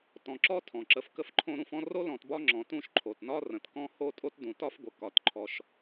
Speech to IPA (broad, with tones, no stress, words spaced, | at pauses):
tɔ̃˨ǁɔ˥tʰɔ̃˩ǁə˨f kə˦fǃʰõ˦ ɾũ˦fɔ̃˥ ro˥lɔ̃˨tbɒ˦ŋ͡ǁɔ̃˩ tũ˦ʃ ǃʰo˩tnɒ˥ rə̃˩tkɔ̃˦ho˦ tʼo˥tdũ˩tɒ˥fɡʷə˩ kɒ˩tǃʰɔ˨ʃ